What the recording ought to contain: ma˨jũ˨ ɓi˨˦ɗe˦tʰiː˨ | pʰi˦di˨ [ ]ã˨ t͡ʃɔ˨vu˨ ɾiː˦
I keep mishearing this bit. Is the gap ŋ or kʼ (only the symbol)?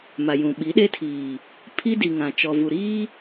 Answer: ŋ